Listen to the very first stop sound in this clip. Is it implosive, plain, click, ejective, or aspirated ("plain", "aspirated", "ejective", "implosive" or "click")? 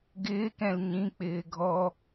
plain